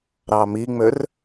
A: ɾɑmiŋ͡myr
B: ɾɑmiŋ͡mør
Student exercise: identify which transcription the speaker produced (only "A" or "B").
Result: B